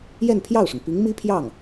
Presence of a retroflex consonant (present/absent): present